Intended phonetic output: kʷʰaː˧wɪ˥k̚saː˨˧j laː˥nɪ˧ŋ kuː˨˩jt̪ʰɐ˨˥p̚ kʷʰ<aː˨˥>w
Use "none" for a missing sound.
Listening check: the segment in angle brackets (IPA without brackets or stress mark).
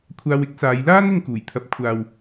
aː˨